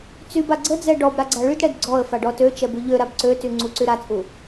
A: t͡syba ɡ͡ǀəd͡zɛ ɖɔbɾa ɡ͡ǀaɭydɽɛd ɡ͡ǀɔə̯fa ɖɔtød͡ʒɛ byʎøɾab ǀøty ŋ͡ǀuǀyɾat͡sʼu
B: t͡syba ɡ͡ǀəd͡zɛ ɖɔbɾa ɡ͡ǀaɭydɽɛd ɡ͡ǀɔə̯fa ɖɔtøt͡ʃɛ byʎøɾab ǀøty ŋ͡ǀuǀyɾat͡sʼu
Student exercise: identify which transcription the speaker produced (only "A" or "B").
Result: B